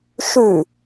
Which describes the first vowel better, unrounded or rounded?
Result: rounded